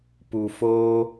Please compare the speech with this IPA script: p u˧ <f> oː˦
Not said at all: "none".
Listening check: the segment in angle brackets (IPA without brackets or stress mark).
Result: f